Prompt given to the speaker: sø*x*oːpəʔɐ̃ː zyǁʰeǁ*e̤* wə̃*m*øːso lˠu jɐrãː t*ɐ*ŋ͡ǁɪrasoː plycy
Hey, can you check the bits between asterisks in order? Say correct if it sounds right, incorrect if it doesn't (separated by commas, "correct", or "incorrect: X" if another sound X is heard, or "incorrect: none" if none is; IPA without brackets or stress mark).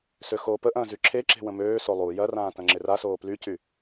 correct, correct, correct, incorrect: ɐ̃